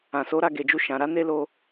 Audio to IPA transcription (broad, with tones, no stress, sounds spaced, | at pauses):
ã˨ s o˨˦ ɾ a˦˨ ɡ e˨ d͡ʒ u˧ ʃ ã˨ ɾ a˨˦ n e˧ l o˧